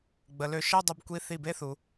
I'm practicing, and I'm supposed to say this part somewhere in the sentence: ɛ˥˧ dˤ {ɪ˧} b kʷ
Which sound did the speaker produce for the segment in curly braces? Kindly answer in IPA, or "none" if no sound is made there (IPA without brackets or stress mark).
ə˧